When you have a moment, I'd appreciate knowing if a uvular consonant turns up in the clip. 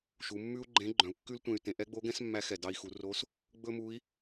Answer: no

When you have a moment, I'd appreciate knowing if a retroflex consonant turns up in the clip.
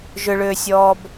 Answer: yes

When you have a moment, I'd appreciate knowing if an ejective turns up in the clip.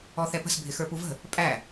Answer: yes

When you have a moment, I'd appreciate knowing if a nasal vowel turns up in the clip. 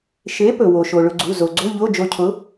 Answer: no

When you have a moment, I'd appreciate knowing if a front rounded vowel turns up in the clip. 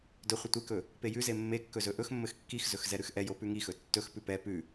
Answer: no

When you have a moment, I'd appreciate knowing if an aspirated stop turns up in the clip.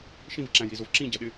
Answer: no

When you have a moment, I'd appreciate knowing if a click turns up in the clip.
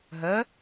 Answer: no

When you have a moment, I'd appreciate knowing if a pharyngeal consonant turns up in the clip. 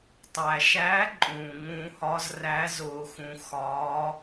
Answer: no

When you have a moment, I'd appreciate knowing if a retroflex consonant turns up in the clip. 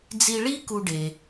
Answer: yes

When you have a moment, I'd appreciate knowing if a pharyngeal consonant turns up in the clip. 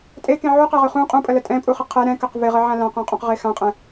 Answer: yes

